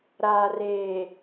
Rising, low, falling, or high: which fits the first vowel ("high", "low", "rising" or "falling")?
low